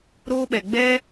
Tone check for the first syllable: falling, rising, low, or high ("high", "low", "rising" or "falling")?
high